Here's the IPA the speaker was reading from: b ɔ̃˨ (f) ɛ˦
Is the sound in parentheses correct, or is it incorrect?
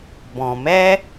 incorrect